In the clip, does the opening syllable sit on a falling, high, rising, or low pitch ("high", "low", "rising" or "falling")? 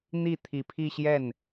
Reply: falling